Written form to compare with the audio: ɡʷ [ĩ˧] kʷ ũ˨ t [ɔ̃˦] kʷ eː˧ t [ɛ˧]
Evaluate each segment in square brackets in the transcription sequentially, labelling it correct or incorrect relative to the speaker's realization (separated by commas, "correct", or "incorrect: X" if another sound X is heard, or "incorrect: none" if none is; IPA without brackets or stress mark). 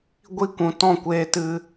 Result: incorrect: i˧, incorrect: ɔ̃˦˨, incorrect: ɨ˧